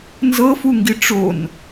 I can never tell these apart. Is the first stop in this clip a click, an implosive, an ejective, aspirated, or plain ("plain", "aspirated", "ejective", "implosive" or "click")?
plain